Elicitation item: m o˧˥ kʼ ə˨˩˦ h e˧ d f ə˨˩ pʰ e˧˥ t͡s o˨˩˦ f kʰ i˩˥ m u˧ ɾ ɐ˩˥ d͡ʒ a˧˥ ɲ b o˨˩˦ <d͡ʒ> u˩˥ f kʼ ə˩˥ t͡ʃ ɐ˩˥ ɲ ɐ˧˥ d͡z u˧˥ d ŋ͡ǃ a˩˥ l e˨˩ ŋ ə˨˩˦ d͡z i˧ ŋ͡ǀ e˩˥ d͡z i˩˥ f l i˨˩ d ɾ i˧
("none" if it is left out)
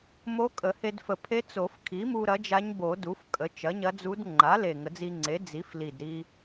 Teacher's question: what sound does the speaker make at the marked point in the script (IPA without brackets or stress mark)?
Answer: d